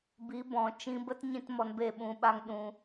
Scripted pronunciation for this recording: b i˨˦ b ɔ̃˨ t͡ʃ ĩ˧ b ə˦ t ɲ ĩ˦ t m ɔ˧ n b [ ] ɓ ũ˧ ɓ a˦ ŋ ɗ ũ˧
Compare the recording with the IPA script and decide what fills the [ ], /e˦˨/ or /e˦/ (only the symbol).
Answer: e˦˨